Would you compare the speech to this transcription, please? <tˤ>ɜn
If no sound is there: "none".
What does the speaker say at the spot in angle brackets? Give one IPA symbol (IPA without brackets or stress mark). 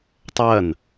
tˤ